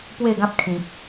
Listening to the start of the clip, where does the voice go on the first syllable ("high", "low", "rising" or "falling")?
falling